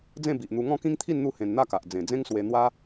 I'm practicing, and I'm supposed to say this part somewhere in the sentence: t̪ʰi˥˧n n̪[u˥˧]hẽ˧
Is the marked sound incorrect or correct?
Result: correct